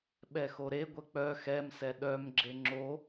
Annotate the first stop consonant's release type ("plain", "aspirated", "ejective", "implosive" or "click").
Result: implosive